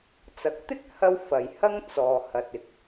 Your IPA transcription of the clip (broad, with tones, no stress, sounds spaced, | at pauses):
t͡s ɐ˨˥ k̚ t̪ ɪ˥ k̚ h ɐ˥ w f ɐ˨ j h ɐ˥ ŋ t͡s ɔː˨ h ɐ˨ t̚ ɪ˨ k̚